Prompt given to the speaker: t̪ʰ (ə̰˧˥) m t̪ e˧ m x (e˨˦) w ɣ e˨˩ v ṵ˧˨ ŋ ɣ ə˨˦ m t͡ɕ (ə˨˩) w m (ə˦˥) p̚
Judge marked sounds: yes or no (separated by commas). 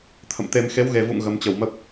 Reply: no, yes, yes, yes